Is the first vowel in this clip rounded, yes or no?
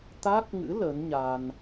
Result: no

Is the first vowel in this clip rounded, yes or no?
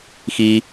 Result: no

